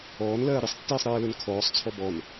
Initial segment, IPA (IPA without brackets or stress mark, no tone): ɔː